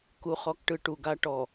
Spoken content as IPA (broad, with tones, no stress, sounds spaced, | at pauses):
k u˨ χ ɔ˨ k ʈ ɯ˨ ʈ u˨ ɡ a˦ ʈ ɔ˨